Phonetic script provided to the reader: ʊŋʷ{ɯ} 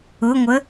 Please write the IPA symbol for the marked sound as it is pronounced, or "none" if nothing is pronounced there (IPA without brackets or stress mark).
ə